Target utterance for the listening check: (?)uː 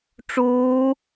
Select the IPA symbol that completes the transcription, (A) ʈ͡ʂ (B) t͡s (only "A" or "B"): A